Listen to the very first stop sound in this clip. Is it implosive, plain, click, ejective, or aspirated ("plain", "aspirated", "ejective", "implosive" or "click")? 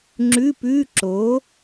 click